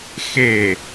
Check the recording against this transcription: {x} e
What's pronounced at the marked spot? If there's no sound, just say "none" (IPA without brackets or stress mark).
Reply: x